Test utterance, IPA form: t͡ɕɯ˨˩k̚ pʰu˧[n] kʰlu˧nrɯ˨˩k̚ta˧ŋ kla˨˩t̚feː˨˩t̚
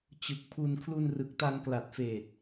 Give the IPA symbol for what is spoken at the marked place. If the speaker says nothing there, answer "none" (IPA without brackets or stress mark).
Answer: n